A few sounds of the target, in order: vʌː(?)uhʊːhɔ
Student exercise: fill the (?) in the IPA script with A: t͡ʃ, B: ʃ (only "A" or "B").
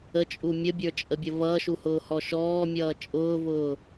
B